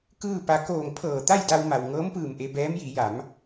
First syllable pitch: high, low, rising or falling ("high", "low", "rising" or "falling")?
falling